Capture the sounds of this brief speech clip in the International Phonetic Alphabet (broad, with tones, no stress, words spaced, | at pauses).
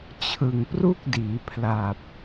t͡ɕʰɯ˨˩ŋpru˥˩k̚diː˩˦ pʰla˨˩p̚